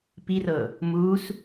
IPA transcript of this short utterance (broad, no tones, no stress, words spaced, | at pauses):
pirɤ | mus